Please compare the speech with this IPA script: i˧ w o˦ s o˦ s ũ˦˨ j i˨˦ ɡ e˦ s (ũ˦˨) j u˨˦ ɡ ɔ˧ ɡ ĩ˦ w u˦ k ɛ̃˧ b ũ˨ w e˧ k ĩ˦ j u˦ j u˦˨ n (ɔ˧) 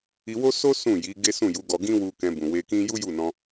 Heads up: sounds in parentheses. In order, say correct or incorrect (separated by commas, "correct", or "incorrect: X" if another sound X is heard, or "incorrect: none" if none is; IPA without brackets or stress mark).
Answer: correct, incorrect: ɔ̃˧